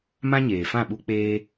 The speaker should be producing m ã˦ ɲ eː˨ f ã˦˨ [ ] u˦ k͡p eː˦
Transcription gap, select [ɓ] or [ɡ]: ɓ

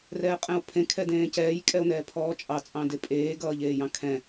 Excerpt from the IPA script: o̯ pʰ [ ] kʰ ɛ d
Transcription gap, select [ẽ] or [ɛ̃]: ẽ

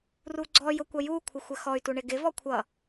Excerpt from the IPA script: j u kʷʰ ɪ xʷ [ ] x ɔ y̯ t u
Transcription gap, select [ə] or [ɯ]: ə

